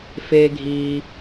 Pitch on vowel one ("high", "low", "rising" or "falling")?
high